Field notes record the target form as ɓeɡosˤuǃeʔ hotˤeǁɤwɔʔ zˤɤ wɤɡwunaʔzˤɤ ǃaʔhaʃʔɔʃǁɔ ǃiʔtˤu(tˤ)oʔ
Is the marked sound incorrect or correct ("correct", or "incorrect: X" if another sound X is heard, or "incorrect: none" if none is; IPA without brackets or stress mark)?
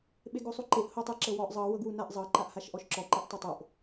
correct